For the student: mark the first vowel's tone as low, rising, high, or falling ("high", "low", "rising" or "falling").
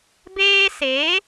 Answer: high